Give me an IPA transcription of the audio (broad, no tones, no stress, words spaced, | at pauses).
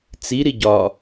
t͡si ɾiɟɒ